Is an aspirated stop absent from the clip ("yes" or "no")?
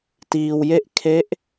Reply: no